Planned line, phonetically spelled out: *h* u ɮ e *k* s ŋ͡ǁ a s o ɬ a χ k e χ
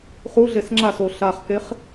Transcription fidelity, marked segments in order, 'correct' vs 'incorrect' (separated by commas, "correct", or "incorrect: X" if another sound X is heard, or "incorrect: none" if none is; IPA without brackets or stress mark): incorrect: χ, incorrect: none